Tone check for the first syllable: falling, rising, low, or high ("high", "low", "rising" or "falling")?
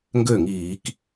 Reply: falling